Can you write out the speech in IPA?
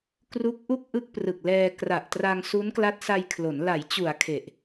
k r u˦˥ k̚ ʔ u˥˩ k̚ ʔ ɯ˥˩ k̚ p r ɯ˨˩ k̚ l ɛː˧ k r a˨˩ ʔ t r a˧ ŋ s u˦˥ n k l a˦˥ t̚ s a˧ j kʰ l o˩˦ n l a˩˦ j t͡ɕ u˩˦ a̯ kʰ e˨˩ ʔ

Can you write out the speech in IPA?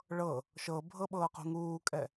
ɭ ɤ | ʃ ɤ bʱ ɤ ɓ ɤː q ṳ ŋ uː kʼ ɛ

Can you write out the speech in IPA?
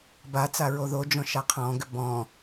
b a t͡s a ɹ o ð o d͡ʒ ɔ̃ ʃ a qʰ ɔ̃ ɡ ʏ b ɔ̃

